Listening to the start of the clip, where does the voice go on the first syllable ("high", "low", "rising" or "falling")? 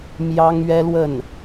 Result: high